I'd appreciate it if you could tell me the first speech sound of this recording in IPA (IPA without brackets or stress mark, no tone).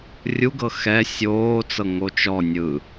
rʲ